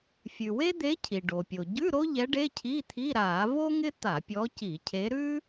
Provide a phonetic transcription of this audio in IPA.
fʲ ʉ˩ w e˥ d̪ e˧˥ cʰ i˩ ɖ o˩ pʲ o˩ ɟ ʉ˧˥˧ ɾ o˥ ʎ ɛ˧˥ ɖ e˧˥˧ cʰ i˧˥˧ t̪ʰ i˧˥˧ ɾ a˧˩˧ v o˥ ŋ ɪ˥ t̪ a˧˩˧ pʲ ɔ˧˥ c i˧˩˧ cʰ e˧˥ ɾ ʉ˥

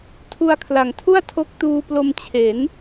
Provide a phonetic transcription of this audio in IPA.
tʰ u˧ a̯ kʰ l a˨˩ ŋ tʰ u˥˩ a̯ tʰ o˦˥ k̚ t uː˧ p l o˧ m t͡ɕʰ e˩˦ n

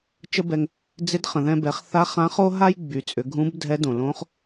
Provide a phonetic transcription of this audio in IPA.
t͡ʃ ə˥ b ɛ˧ ŋ | d͡z ɪ˧˥ d χ ə̃˩ ð ɛ̃˧ b ɛ˩˧ χ θ a˧˥ χ ã˧˥ χ o˥ ɦ a˥ j ɡ͡b y˩˧ t͡sʼ ʏ˩˧ ɡʱ ũ˧˥ b dʱ ɛ˧˥ d õ˩ l õ˧˥ χ

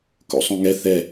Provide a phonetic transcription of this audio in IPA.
k o̰ sˤ õ ŋ ɛ θ ɛ

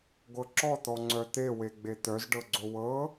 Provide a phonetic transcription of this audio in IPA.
ɡʷ ɤ ǁ ɔ t̪ ɔ ŋ͡ǀ œ t̪ e w e ɡ͡b e t̪ œ z ɖ ɤ ɡ͡ǀ o w ɤ

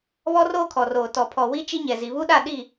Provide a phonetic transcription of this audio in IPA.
β ɔ˦ r oː˦ kʰ ɔ˨ r oː˨ t ɔ˨ pʰ ɔ˨ w i˦ t͡ʃ i˦ ɲ ɛ˨ z i˨ β u˦ ɗ a˦˨ ɗ i˦˨

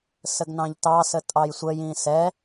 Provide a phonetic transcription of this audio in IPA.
s ə ɡ n ɑ̃ ʎ t ɑ s ə tʼ ɑ j sʷ ə j ĩ s ɛ

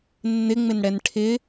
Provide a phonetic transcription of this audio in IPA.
nː ɪ ŋ͡m ɪ n ɽ ɛ n ʈʰ ɪ

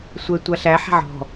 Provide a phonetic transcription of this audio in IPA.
sʷ ɛ tʷ a ɬ æ ħ a̤ ʕ ɔ̤

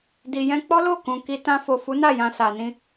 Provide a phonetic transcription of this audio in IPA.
d i˨ j ɛ̃˧ k͡p ɔ˦ l o˦˨ k ũ˨ k i˧ t ã˧ f o˨ f u˨˦ n a˦˨ j ã˧ s a˨ n ĩ˧

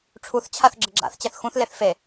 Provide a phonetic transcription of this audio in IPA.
ʈ͡ʂʰ u θ t͡ɕʰ a θ ɡ͡ǁ ɘ ɡ͡ǁ a̰ θ t͡ɕ ɛ θ x ũ θ l e θ f e

